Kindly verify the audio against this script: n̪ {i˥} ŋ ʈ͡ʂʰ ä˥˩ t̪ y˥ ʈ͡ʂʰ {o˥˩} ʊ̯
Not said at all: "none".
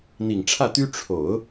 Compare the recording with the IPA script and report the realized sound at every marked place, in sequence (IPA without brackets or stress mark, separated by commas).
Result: i˨˩, o˨˩˦